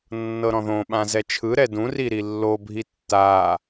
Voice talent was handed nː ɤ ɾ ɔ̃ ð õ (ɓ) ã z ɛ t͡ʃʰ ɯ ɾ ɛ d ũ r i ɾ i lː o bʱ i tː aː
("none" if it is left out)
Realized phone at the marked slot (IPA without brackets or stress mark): ɓ